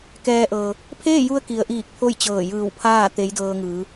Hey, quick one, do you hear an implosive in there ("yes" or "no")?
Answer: no